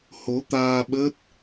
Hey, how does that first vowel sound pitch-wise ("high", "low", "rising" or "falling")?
rising